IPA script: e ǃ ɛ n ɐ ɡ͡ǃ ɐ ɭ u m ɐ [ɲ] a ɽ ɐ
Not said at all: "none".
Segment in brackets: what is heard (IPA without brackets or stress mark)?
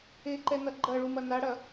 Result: n